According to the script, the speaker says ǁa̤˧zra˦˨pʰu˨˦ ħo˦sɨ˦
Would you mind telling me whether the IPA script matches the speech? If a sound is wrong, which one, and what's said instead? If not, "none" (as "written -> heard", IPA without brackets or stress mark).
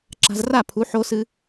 none